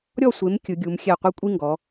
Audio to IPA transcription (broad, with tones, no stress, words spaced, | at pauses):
ɾʲɔ˥˨sʷe˨˦m kʲɯ˨˦ɡʲu˨˦m xʲɛ˥˨ qʷɯ˥ kʷʼi˥ŋɡɔ˨˦